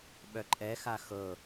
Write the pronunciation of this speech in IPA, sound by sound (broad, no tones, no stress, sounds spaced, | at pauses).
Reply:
ɓ œ ǃʼ ɛ x a x ɤ